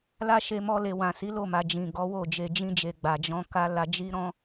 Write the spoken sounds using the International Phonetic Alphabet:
l a˦ ʃ e˧ m ɔ˧ l e˨ w ã˨ s i˨˦ l o˦˨ m a˨ d͡ʒ ĩ˨ ɡ ɔ˨˦ w o˦˨ d͡ʒ e˨ d͡ʒ ĩ˧ d͡ʒ e˨ ɡ͡b a˨ d͡ʒ ɔ̃˧ k a˦ l a˧ d͡ʒ i˦ ɾ ɔ̃˦

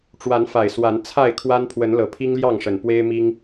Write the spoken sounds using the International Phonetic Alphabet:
ʈ͡ʂ w a˨˦ n f a˨˩ ɪ̯ s w a˨˦ n t͡sʰ a˥˨ ɪ̯ kʰ w a˦ n pʰ w ə˨˦ n l ɤ˨˩ pʰ i˦ ŋ l j ɑ˥˨ ŋ ʂ ə˨˩ n p w e˦ ɪ̯ m i˦ ŋ

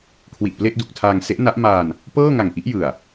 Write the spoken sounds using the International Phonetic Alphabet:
kʰ w i˨˩ ʔ p l e˥˩ ʔ d u˨˩ k̚ tʰ aː˧ ŋ s e˦˥ ʔ n a˦˥ ʔ m aː˧ n | p ɤː˥˩ ŋ a˨˩ ŋ ʔ i˦˥ ʔ j ɯ˨˩ a̯

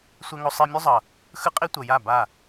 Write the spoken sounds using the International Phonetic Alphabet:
sʷ ɛ˦ ŋ o˦ sˤ i˦ mʲ u˦ zˤ ʌ˨ | x ɯ˦ qʼ i˦ tʷ ʌ˨ j a˦˨ b a˦˨

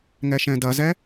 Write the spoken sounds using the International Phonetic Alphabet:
ŋ ɛ ʃ ɛ̃ d ɐ z ɛ

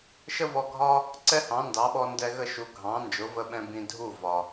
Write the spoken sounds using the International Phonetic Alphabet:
ʃ ə˥ v ɔ˧ ɡʱ ɒ˥ | ǀ ɛ˥ h ɑ̃˩˥ n d ɑ˩˥ ɓ ɔ˧ n d ɛ˧ ɣ ə˥˩ ʃ u˩˥ ɡʱ ɑ̃˩˥ n d͡ʒ ʊ˩˥ v ə˧ ɓ ɛ̃˧ b ĩ˧ dʱ u˥˩ v ɒ˩

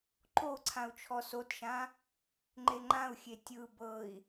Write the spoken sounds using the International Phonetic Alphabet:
ǃ o ǀʰ ã u̯ t͡ʃʰ ɔ s o t ʃ ã | ŋ͡ǃ e ŋ͡ǃ ã u̯ xʲ e tʲ ɯ b ɤ i̯

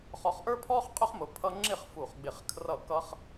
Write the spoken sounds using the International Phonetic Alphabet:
χ ɔ˧ χ ʔ ə˞˥ pʰ ɔː˥ χ qʼ ʊ˥ χ m ʊ˧ pʰ ʌ˥ ŋ͡ǁ ɪ˥˧ χ f u˧˩ χ ɡ͡b ɪ˧˩ χ kʰ r ʌ˥˧ k ʌ˥ χ

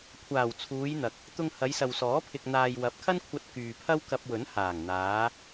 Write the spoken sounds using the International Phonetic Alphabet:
kʷʰ aː˨˩ w t͡sʰ uː˨˧ j n̪ ɐ˨ k̚ | t̪ ʊ˨ ŋ h ɐ˨˧ j s ɐ˨ w s ɔː˨˥ pʰ ɪ˨ k̚ n̪ aː˨ j w ɐ˨˥ p̚ kʰ ɐ˥ n kʷʰ ɐ˧ t̚ k yː˨ pʰ ɐ˥ w k ɐ˧ p̚ w ɵ˨˥ n h aː˨˩ ŋ n̪ aː˨˧

